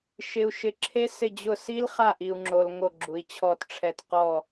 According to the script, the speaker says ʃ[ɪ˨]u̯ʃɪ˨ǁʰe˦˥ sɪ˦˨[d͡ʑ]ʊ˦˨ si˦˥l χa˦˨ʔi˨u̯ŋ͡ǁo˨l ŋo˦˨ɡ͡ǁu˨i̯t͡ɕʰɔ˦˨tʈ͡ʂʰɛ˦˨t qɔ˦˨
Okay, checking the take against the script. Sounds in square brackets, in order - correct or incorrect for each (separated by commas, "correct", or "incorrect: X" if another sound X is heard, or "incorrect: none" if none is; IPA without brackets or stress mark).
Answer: correct, correct